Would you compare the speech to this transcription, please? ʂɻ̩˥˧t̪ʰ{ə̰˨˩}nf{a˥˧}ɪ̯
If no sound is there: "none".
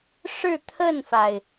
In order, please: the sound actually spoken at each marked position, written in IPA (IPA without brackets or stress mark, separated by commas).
ə˥˩, a˩